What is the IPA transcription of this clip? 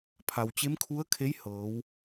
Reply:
pʰ a˩ w t͡ɕ e˧˥ m kʰ u˧˥ ə̯ kʰ e˧˥ j h ɤː˩˧ w

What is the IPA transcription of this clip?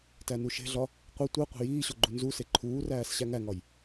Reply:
t æ n u ʃ e̤ ɮ ɒ | qʷ i tʷ i qʷ e̤ j iː ɕ o ɡ͡ǃ u n z u s e ǃʰ uː r æː s ɕ æ ŋ æ ŋ ɒ j

